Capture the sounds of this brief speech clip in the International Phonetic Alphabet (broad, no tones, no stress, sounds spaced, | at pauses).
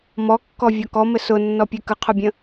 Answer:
m ɔ kː ɔ vʲ ɒ k ɔ m ɘ s ʊ nː ɔ pʲ ɘ k ə qʰ ʊ bʲ ə̃